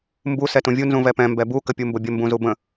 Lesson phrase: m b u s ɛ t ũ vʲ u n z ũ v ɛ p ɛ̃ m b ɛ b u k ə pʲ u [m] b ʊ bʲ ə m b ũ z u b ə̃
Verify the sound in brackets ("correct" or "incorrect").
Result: correct